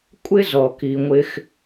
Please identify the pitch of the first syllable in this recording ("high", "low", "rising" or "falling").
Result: high